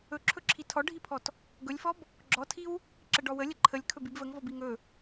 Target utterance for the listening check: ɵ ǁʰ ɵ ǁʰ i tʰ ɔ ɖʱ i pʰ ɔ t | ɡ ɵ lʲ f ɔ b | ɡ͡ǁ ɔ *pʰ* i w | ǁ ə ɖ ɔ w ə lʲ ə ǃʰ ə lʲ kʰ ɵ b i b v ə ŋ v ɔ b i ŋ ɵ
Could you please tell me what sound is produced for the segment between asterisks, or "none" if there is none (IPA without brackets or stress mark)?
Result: tʰ